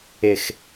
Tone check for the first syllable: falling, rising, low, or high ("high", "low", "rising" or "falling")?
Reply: low